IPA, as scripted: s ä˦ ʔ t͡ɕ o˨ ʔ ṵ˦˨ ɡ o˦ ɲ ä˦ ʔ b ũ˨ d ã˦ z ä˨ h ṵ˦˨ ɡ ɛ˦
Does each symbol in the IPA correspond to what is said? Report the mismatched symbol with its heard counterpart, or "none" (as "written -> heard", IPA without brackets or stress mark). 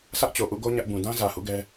none